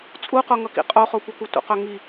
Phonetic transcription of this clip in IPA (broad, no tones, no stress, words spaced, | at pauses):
t͡sʼuqoŋʌkḭ qʼoχokʷʌku tʷə̰qɵ ŋi